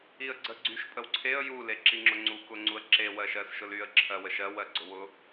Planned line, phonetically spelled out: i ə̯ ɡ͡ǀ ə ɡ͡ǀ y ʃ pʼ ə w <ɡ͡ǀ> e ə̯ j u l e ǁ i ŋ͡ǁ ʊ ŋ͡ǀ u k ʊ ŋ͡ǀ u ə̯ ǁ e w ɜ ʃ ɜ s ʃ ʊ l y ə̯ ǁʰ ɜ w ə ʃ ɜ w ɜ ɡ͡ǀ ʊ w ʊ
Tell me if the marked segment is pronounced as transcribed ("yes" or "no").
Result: no